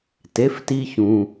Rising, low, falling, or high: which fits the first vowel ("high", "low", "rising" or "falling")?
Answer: rising